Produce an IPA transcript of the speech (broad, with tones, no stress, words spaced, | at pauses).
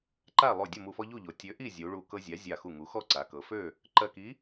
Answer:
ǃa˥˨ lˠo˧˩ dʲʌ˥˨mu˧˩fɔ˦ ʎu˥˨ʎo˩˧ tʲø˨˥ʔi˥˨ zʲu˩˧ɭu˧˩ kɤ˦zʲa˨˥ zʲa˧˩xu˧˩ŋu˩˧xɔ˥˨ ǀa˩˧kɤ˩˧fø˥˨ | ǃɜ˧˩ki˨˥